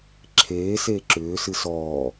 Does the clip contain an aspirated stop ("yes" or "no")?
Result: yes